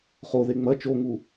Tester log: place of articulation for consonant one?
uvular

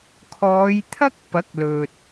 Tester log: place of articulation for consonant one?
velar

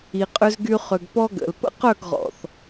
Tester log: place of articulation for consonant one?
uvular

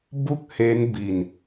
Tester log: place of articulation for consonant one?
labial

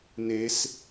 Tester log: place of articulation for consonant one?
alveolar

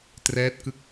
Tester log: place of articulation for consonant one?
alveolar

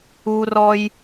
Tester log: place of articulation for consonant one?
alveolar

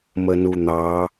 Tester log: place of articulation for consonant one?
labial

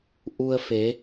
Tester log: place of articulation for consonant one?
glottal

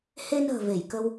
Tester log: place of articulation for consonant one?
glottal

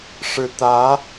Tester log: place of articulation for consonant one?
retroflex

